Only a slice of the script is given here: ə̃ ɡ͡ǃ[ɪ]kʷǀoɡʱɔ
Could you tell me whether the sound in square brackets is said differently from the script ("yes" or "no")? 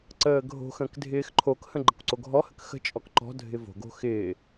yes